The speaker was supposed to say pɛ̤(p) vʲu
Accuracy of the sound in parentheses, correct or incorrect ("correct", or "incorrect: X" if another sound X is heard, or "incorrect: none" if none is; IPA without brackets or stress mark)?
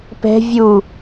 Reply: incorrect: none